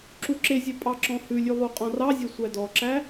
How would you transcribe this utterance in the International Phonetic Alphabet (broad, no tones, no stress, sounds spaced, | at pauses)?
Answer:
ǁ u ǁ e zʲ e pʼ ɑ ǁ ɔ̃ h ʉ lʲ ʉ lˠ u qʼ ɔ̃ r ɑ zʲ e sʷ æ d ɔ ǁ æ